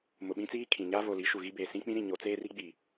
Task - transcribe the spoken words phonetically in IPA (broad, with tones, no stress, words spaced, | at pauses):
mʊ˨ɓĩ˦t͡siː˦kʰĩ˨ ɲa˦vo˨li˨˦ ʃu˨ɣi˦beː˨ sĩ˦k͡pĩ˦ɾĩ˨ɲo˨˦ t͡seː˦ri˦ ɡ͡bi˨